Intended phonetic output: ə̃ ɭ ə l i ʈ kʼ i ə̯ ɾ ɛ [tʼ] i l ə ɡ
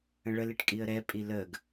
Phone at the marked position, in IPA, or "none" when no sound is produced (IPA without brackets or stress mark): pʼ